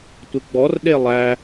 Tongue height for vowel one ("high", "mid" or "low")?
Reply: high